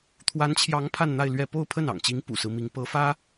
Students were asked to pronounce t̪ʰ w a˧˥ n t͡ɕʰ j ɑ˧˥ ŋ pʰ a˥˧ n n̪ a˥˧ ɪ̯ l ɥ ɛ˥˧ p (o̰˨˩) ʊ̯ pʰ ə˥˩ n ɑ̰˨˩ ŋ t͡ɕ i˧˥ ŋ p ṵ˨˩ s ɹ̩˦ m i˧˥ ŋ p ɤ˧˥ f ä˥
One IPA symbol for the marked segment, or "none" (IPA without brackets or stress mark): o˥˧